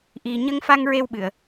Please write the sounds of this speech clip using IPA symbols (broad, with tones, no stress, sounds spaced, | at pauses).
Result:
ʔ i˨˩ ɲ ə˧ ŋ f a˧ ŋ ɹ e˧ w ɓ ɨ˨˩˨ ə̯